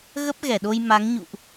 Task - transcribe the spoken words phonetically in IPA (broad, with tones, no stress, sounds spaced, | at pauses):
ɣ ə˦˥ p̚ ɣ ɛ˧˩ ɗ o˧ j m a˨˦ ŋ ɲ ṵ˧˨ ʔ